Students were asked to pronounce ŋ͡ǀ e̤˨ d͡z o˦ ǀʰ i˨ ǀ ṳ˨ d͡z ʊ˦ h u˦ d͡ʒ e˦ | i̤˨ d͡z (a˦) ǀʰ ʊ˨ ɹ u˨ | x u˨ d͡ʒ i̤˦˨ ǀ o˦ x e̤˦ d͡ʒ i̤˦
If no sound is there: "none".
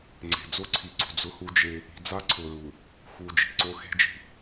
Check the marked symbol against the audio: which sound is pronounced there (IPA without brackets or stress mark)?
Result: a˦